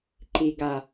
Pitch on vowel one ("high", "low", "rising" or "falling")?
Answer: low